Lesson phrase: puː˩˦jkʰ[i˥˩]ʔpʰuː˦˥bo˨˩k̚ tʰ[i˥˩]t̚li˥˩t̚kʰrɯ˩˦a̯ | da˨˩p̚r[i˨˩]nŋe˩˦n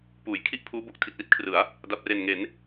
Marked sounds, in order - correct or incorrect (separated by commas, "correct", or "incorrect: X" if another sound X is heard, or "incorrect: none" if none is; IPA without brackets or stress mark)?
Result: correct, incorrect: i˨˩, incorrect: e˨˩